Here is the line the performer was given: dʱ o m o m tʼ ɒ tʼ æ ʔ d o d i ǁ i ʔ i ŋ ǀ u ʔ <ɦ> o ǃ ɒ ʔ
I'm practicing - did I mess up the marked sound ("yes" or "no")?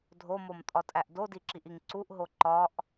no